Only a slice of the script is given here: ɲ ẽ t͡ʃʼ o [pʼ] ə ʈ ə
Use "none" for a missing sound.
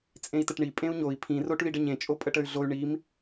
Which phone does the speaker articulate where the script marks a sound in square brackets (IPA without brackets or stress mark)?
pʼ